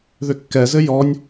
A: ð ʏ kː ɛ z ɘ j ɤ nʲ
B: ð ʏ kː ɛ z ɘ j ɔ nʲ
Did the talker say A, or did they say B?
B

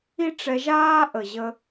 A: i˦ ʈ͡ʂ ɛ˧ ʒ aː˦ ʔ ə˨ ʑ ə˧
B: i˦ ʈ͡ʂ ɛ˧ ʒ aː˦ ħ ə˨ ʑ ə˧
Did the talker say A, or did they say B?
A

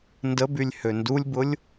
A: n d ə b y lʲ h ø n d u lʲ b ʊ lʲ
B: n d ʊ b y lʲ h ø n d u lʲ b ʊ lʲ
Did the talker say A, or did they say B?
A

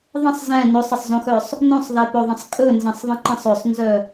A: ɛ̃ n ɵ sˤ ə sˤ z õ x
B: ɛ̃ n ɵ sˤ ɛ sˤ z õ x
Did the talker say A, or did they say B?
A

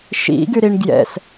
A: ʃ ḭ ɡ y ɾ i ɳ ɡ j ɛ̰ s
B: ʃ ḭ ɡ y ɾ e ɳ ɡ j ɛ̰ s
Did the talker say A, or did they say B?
A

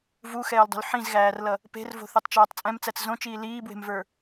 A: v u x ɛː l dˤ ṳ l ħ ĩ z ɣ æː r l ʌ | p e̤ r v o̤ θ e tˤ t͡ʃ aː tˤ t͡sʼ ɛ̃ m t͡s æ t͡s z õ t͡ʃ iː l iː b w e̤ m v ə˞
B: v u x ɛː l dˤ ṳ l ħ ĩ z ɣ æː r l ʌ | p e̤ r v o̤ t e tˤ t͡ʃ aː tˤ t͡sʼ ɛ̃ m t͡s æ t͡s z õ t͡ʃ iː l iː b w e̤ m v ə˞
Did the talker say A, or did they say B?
A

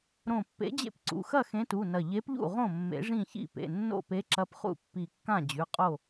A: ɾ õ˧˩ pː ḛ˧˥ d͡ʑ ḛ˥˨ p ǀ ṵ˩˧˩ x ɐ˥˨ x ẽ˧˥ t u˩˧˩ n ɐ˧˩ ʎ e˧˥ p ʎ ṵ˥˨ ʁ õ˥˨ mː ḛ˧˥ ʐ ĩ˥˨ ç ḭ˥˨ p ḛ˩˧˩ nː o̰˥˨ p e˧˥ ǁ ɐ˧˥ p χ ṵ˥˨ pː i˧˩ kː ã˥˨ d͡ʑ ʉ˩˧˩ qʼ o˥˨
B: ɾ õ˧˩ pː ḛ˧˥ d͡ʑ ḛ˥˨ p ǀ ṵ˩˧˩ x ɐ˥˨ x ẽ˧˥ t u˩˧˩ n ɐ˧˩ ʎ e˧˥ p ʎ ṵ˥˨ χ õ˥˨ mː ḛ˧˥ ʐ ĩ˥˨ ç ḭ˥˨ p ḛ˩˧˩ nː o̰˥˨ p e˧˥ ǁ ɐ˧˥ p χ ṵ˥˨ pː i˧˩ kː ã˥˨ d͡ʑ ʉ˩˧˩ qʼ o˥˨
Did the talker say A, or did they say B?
A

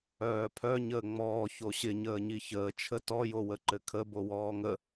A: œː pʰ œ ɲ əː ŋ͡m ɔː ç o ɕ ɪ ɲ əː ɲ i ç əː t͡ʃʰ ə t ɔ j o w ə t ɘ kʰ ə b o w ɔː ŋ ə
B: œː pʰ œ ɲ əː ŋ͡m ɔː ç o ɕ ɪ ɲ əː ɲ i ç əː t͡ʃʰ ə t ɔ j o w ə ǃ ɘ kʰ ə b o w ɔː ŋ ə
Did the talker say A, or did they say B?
B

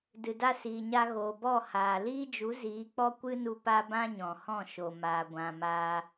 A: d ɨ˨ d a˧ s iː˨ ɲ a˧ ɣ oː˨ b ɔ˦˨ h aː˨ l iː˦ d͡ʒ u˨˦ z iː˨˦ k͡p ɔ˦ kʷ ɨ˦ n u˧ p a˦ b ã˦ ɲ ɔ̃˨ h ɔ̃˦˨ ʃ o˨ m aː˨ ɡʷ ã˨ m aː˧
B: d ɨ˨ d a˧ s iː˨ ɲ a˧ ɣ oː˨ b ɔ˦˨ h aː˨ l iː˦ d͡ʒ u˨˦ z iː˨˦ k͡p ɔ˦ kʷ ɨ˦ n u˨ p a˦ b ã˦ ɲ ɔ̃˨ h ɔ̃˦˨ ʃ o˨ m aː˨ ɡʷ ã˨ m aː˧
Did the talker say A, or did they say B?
A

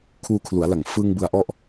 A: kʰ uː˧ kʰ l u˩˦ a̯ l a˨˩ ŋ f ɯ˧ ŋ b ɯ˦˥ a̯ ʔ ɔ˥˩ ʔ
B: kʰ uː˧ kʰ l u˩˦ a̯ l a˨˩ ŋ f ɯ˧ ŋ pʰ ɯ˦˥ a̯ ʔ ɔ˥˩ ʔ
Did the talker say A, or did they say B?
A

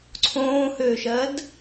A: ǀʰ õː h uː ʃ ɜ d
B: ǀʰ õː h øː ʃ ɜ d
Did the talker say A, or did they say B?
B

